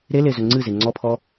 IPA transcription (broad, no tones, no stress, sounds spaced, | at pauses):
ɾ e l e z ɵ ŋ͡ǀ ɨ z e ŋ͡ǀ ɔ pʰ ɔ